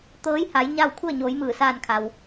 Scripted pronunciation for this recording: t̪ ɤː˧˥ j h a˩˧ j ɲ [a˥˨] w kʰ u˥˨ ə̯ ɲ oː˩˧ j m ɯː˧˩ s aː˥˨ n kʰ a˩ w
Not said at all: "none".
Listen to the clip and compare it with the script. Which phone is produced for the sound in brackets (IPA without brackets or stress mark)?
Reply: a˥˨